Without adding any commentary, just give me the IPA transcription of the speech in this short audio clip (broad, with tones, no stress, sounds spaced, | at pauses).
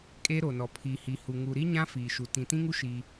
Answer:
kʼ e˦ ɾ o˨ n ɔ˨ pʰ i˨ h i˨ h u˨ ŋ u˨ ɾ i˦ ɲ ã˦ f iː˨ ʃ u˨ t ĩ˨ t ĩ˦ ŋ u˦ ʃ i˦